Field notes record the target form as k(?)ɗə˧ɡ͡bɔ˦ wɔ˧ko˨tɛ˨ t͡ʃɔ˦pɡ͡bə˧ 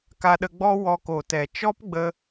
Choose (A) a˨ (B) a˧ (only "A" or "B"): B